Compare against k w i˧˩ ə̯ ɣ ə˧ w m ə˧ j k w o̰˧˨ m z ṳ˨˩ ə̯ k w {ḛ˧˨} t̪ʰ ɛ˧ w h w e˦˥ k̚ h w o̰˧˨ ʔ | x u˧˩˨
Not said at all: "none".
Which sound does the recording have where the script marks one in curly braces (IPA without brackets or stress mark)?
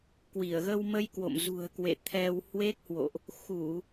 ḛ˧˨